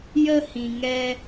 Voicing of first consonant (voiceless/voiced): voiced